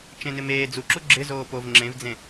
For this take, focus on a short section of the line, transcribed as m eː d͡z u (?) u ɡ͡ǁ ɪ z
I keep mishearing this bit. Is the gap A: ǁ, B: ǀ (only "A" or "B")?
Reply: A